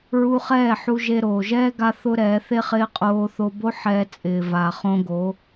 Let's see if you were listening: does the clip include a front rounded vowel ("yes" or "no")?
no